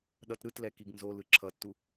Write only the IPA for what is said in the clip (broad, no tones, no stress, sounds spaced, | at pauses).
ɗ ʌ t ɾ ɯ t l ɛ k i ɡ n z o l ɯ ǁʰ ʌ tː u